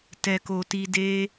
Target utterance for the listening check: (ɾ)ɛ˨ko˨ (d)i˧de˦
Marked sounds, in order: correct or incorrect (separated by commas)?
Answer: incorrect, incorrect